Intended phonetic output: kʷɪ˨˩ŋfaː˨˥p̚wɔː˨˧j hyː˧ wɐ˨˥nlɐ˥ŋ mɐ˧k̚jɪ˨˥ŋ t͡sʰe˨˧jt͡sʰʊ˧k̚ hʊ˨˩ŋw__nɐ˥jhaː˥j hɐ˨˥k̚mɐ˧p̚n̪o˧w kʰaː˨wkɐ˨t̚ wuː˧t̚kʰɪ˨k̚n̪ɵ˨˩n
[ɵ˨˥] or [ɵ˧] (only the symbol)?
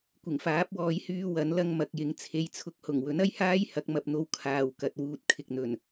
ɵ˨˥